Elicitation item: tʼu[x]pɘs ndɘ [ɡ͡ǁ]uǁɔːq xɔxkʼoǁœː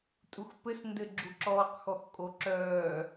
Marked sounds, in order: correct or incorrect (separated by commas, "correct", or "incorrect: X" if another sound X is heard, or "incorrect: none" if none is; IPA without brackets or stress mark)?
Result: correct, correct